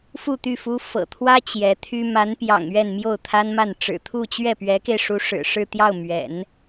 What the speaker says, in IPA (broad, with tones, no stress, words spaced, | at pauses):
fu˥˧t̪y˥˩ fu˥ fɤ̰˨˩t̪ʰwä˥ t͡ɕjɛ˧˥t̪ʰy˥ ma˧˥npjɑ̰˨˩ŋ ɥɛ˥˧nmjo˥˩ʊ̯t̪ʰa˥nma˥˩n ʈ͡ʂɻ̩˨˩t̪ʰu˥˧t͡ɕɥɛ˥˩ pɥɛ˧˥ke˧ɪ̯ʂu˧˥ ʂɻ̩˨˩ʂɻ̩˥˧t̪jɑ˥˩ʊ̯ mɥɛ̰˨˩˦n